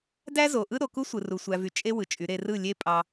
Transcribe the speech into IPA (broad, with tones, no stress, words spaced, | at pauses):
dæ˦zo˨ʔɯ˦ ɾo˨ku˦sʷɯ˨ru˨ sʷæ˨vy˨ t͡ʃʼe˦ wɯ˨t͡ʃʼy˨˦ɾe˧ rɯ˦˨lʲe˦ pʼɑ˧